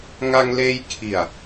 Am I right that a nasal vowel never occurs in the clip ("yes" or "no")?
yes